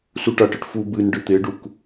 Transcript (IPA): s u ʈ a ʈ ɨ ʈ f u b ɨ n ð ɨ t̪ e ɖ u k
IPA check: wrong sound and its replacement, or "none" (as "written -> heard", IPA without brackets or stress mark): ð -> ɖ